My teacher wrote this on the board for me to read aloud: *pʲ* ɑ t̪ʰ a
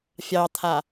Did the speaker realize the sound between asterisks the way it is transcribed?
no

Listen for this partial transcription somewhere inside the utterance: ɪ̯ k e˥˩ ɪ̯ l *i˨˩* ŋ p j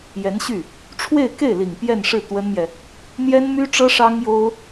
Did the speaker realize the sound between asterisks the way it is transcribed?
yes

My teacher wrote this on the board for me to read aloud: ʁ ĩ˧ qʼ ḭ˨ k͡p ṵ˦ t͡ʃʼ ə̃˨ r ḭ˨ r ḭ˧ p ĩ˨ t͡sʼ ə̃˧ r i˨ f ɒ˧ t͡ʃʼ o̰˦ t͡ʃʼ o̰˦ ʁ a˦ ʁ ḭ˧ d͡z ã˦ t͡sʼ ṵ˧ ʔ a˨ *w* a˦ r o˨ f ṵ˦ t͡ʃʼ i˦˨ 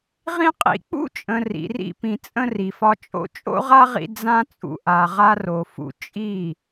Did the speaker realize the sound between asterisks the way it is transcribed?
no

